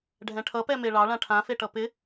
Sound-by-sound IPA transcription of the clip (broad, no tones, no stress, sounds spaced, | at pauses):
ɖʱ ɛ̃ ʈʰ ʌ p ɛ m e ɭ ɑ ɭ ã ʈʰ ã f e ʈ ʌ p ɪ